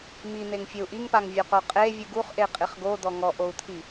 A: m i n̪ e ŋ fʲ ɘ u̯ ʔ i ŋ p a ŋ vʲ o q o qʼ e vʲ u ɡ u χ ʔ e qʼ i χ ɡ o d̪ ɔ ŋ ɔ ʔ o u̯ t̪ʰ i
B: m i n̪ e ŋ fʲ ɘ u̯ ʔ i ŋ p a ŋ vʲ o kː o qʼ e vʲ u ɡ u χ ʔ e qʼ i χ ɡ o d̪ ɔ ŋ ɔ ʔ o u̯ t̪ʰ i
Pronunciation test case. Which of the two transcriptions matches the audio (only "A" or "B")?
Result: A